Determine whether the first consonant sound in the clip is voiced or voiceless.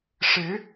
voiceless